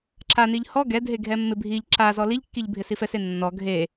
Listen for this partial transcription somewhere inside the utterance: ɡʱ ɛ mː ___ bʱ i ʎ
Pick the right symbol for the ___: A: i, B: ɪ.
B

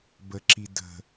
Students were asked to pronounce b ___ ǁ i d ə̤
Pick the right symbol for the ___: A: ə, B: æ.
A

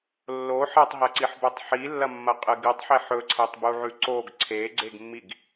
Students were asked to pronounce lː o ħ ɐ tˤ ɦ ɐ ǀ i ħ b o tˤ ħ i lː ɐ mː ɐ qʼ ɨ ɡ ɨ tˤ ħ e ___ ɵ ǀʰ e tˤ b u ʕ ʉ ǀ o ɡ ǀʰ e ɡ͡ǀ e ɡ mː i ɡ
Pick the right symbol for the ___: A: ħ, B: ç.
A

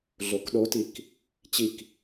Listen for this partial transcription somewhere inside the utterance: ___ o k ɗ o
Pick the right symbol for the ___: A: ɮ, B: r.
A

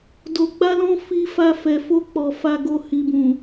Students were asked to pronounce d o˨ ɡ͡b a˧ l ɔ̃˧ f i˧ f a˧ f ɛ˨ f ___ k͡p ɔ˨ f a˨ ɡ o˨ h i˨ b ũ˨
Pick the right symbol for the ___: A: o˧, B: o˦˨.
A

